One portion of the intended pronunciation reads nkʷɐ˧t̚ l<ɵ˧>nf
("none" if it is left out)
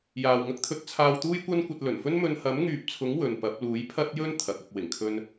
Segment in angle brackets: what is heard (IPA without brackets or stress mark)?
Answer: ɵ˨˩